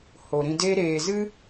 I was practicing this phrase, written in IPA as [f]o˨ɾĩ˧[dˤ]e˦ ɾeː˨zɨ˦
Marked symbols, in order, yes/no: no, no

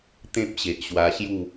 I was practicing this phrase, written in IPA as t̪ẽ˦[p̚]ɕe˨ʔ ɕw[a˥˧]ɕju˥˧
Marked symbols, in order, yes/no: yes, no

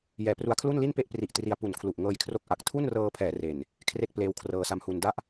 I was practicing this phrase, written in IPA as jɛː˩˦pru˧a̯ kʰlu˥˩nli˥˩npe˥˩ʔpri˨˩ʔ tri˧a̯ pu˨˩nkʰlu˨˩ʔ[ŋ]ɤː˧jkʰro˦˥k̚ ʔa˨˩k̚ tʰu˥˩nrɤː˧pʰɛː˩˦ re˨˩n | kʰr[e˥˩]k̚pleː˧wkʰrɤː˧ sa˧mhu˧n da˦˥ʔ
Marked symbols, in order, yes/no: yes, yes

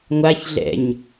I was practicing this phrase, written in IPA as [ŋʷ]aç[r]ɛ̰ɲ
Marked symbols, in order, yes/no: yes, no

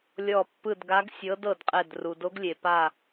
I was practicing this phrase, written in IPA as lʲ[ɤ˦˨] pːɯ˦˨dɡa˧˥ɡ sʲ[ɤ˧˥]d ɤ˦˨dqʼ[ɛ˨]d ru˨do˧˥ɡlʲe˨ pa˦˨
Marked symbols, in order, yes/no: no, yes, no

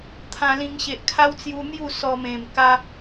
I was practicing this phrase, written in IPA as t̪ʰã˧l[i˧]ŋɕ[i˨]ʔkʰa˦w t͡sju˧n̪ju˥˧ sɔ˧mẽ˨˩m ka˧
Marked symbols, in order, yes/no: no, no

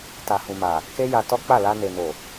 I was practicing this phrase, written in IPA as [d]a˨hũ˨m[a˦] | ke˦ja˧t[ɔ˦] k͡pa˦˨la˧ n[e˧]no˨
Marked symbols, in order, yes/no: no, no, yes, no

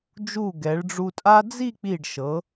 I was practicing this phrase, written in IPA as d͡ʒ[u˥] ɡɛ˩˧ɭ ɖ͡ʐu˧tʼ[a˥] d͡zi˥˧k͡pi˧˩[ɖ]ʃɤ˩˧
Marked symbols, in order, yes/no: no, yes, yes

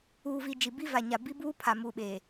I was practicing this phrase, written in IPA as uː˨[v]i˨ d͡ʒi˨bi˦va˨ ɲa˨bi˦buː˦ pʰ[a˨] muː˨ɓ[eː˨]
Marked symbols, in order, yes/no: yes, yes, yes

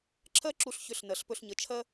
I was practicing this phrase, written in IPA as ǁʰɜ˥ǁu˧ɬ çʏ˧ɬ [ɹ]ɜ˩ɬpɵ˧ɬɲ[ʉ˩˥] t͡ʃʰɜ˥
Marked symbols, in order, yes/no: no, no

